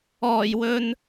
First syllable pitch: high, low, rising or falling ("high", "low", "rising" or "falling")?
low